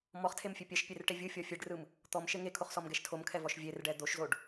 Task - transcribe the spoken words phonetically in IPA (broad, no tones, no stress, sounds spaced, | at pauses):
m ɔ χ tʰ e m fʲ e pʲ ɛ ʃ pʲ e r ʈ e vʲ ɯ fʲ ɔ fʲ e ɖ r ɯ m | t̪ ɔ m ʃ e ŋ e kʰ o χ s ɔ m ɡ ɛ ʃ tʰ o m kʰ ɛ v ɔ ʃ vʲ e r ɖ ɛ d̪ o ʃ z o ɖ